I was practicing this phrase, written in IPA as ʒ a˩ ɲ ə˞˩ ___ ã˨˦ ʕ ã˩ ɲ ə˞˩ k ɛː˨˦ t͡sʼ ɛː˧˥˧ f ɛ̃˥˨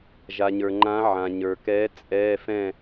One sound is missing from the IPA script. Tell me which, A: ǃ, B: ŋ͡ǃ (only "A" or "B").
B